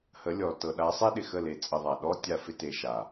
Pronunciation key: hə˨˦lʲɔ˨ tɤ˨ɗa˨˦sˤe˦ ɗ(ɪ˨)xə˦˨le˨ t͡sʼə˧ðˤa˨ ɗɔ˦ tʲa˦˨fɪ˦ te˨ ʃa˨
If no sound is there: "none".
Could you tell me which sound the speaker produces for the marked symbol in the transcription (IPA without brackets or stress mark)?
ɪ˨